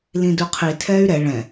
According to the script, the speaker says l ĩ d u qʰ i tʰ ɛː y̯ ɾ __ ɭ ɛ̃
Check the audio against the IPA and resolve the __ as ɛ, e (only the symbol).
ɛ